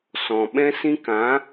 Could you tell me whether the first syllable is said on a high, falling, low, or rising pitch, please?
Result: low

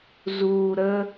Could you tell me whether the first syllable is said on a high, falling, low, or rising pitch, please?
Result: low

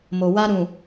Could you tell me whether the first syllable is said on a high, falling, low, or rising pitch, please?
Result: low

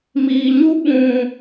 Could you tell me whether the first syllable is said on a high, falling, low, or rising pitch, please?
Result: low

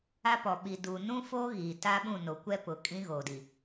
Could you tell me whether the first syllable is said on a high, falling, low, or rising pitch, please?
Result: high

